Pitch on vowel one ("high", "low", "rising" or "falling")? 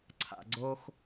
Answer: low